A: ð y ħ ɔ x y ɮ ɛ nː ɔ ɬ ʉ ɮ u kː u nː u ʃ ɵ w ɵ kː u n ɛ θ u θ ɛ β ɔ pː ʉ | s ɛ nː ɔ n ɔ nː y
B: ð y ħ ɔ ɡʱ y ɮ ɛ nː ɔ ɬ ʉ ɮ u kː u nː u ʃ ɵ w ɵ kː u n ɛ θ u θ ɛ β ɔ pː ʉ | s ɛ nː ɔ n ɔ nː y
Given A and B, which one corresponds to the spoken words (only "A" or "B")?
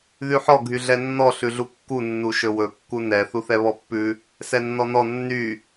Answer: B